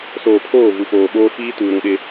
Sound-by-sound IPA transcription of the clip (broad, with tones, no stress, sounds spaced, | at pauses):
s oː˨ pʰ oː˦˨ v u˨ f oː˨ ɓ oː˦ f iː˦ t uː˨ ɾ ũ˦˨ ɗ ɪ˦